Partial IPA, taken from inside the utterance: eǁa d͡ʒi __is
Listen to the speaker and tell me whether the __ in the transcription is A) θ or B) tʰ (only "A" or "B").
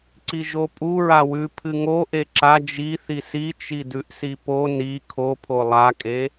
A